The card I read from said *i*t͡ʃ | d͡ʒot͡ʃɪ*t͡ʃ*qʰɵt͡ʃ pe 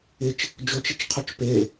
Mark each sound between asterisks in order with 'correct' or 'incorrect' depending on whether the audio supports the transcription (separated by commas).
incorrect, correct